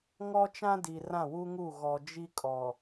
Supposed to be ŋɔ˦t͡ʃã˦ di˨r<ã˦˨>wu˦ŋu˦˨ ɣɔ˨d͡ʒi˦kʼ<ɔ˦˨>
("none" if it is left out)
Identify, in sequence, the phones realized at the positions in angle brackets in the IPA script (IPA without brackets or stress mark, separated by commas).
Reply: ã˦˨, ɔ˨